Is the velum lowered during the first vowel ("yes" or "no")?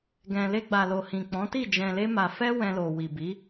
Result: yes